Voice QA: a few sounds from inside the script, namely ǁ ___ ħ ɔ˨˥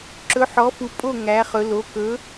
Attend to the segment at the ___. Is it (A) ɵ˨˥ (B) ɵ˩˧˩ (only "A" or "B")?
A